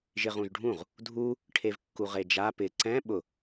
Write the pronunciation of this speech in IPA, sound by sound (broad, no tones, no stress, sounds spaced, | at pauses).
ʒ ɪ ʁ ũ ʒ ɖʱ ũ ʁ | dʱ u | ʈʰ e v kː u ʁ e d͡ʒ a p ɪ ǀ ɛ̃ ɓ ʊ